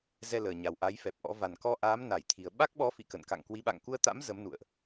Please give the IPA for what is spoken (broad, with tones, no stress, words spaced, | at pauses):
zɛ˧ləː˨˩ɲa˨˩w ʔa˨˦jfɛ˨˩p̚ʔɔ̰˧˥ va˨˩nkɔ˧ʔaː˨˦m na˧˩jt̪ʰi˨˩ə̯ ɓa˦˥k̚ɓɔ˨˦fḭ˧˨kə̰˧˨n ka̰˧˨ŋkwi˨˦ɓa̰˧˨ŋ ku˧ə̯t̪a̰˧˥m zə˨˦mnṵ˧˨ə̯ʔ